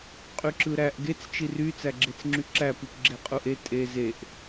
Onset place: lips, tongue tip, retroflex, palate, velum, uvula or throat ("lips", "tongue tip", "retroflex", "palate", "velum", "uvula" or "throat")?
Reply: uvula